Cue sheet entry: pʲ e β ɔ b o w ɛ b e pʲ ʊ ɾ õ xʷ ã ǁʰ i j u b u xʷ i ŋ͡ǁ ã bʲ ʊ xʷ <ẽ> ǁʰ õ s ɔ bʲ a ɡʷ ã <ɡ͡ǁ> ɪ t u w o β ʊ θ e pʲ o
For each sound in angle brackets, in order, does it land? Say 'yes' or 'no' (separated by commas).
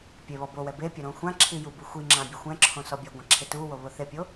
no, no